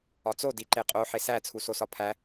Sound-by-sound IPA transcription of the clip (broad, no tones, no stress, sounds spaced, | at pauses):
ɒ t͡s o d i ǃ e qʼ o ħ e s æ t͡sʰ u s o s ɒ pʰ æ